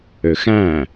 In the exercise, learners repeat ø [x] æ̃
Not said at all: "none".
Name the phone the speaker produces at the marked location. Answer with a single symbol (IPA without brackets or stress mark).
x